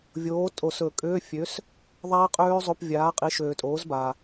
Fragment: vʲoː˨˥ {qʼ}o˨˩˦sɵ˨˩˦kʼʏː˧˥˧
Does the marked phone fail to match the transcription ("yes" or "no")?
yes